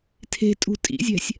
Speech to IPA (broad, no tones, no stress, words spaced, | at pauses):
tʰe̤tʼṳ tʼḭzʲɛ̤sʲ